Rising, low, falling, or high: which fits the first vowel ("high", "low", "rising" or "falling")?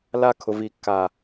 high